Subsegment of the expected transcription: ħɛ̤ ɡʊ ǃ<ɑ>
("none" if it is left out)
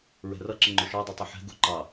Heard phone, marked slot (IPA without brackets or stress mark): ɑ